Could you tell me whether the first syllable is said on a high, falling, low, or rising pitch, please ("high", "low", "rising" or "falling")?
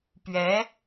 rising